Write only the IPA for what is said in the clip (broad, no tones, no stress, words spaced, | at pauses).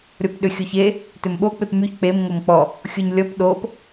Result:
ɾʲɔpɗʏxʲoçe | tʏmɓo k͡pepmyç k͡pem ŋomk͡pɔ | xʲoɲlʲɔp ɗop